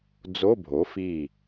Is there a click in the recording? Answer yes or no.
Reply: no